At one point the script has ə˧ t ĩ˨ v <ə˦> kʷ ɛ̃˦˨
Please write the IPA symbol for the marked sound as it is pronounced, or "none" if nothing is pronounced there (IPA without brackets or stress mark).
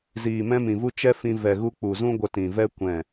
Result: ɛ˦